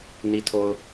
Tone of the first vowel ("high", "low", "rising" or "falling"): low